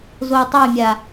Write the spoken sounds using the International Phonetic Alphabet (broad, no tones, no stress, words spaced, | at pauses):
zojtˤojmʲa